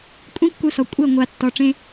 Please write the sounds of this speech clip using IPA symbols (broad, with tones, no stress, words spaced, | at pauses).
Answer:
kʷʼĩ˦kːu˧sɔ˨ kʷʼe˦˨ ŋʷa˨ tːɔ˨ʈ͡ʂẽ˧